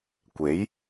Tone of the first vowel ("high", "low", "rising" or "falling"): rising